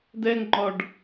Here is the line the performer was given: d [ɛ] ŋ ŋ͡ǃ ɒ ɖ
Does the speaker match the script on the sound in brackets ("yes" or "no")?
yes